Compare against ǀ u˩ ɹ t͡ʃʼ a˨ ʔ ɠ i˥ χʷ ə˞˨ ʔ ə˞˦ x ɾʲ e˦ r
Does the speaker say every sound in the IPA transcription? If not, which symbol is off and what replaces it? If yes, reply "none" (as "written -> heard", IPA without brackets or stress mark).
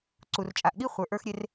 ɹ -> r